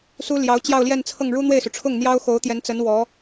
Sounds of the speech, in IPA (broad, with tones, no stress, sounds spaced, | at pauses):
s u˥ l j ɑ˧˥ ʊ̯ t͡ɕ j ɑ˥˧ ʊ̯ l j ɛ˥˧ n t͡sʰ ɤ˥˩ ŋ ɻ u˥ n̪ w e˥˩ ɪ̯ s u˩ ʈ͡ʂʰ ʊ˥˩ ŋ n̪ j ɑ˥ ʊ̯ x o˧˥ ʊ̯ t̪ j ɛ˧˥ n t͡s ə˧˥ n w ɔ˧˥